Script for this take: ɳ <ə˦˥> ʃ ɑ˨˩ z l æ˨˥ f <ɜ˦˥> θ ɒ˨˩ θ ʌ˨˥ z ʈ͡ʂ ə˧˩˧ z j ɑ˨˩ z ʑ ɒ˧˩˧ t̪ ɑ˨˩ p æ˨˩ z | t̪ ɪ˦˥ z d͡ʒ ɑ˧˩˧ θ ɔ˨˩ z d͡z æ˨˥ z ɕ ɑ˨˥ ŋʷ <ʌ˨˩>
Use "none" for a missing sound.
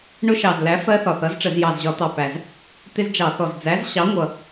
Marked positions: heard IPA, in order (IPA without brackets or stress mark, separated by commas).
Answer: ʊ˦˥, ɜ˦˥, ʌ˨˩